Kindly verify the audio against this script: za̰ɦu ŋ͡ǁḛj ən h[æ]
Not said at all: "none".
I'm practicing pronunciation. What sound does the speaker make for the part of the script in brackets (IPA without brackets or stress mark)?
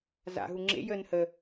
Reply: ə